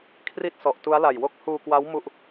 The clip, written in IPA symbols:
kʰ r i˥˩ t̚ s ɔ˨˩ ʔ t u˦˥ a̯ l a˨˩ j w o˥˩ k̚ h uː˧ k w a˦˥ w m u˥˩ ʔ

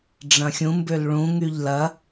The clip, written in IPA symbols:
ɖ͡ʐ ɐ̃ xʲ ũ m b ø l ɭ ũ ŋ y ʎ l ɐ

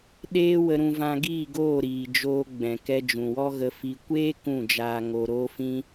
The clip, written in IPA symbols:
ɗ eː˦ w ə˧ ɾ ũ˧ v ã˧ ɡ iː˦˨ ɡ oː˦˨ ɾ iː˨ d͡ʒ oː˧ ɡ͡b ɛ̃˨ k ɛ˧ d͡ʒ ũ˨ w ɔ˦ ɣ ə˧ f i˧ kʷ eː˦ k ũ˦˨ d͡ʒ aː˧ ŋ o˧ ɾ oː˧ f ĩ˧

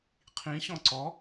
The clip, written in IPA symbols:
qʰ ĩ ɕ ɔ̃ ǀ ɔ

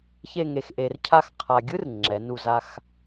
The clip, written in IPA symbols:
ç e˥˧ ŋ e˧ x ʔ e˧ r cʰ a˥˧ x qʰ a˧ ɡʲ ɯ˥ r ŋ͡ǁ ɛ˩˧ n u˧˩ z a˧ x

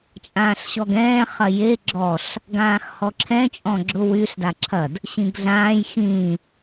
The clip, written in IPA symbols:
t͡ʃʼ ãː ɬ ɕ ɔ ɡ ɛ̃ː χ ɐ j e ɡ͡ǁ ɔ ɬ | ɡ ãː x h ɔ ǁʰ ɛ̃ t͡ʃʼ ɔ̃ ɡ͡ǁ ʊ w y ɬ d a ǁʰ ɐ d | ɕ ĩ ɡ ɮ ãː j x ĩ

